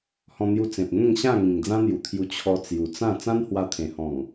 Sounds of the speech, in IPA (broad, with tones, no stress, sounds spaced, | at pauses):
h ɔ̃˧ n̪ j u˧ t͡s ẽ˨ p̚ ŋ ẽ˥˧ ŋ ɕ ã˥˧ ŋ ĩ˨˩ ŋ d͡z ã˦ n̪ j u˨˩ t̪ʰ j u˧ t͡ɕʰ ɔ˧ t͡s j u˨˩ t͡s ã˥˧ t͡s ã˦ n h w a˧ t̪ʰ ẽ˨˩ h ɔ̃˨˩ ŋ